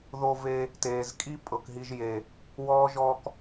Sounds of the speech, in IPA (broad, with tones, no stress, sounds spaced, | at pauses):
ð o˧ v e˧ | t eː˨ z kʼ i˦ pʼ ɤ˨ k ɦ i˧ ʒ j e˨ | w ɔː˦ ʒ ɔ˦ k